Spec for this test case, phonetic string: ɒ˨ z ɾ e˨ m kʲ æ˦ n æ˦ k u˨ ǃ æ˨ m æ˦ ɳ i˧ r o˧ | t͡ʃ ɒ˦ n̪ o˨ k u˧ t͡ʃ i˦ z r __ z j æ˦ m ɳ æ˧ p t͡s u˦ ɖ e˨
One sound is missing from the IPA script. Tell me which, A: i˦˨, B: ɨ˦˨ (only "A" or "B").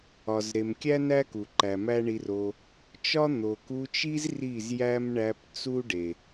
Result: A